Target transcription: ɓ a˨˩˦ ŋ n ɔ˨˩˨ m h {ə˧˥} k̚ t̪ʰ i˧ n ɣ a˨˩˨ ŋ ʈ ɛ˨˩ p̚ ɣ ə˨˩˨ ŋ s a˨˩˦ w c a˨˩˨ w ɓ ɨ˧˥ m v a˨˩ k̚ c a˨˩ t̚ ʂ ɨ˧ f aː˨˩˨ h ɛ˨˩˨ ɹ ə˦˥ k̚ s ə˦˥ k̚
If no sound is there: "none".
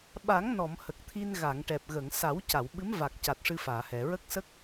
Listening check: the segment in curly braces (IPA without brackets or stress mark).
ə˨˩